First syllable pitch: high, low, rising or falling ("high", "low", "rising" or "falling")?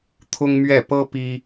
high